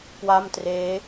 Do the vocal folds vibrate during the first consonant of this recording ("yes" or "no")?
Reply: no